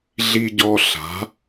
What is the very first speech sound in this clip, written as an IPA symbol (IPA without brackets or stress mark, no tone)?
ɮ